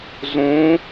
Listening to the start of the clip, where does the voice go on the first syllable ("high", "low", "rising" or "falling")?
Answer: rising